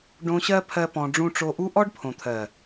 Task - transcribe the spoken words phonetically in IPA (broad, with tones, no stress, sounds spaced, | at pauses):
ɖ õ˧ ɕ ɜ˦ pʰ ɜ˦ p ɔ̃˧ ɖ͡ʐ ũ˧ ʈ͡ʂ o˧ ʔ u˦ ʔ ɔ˦ ɖ pʰ õ˨ t̪ʰ ɜ˨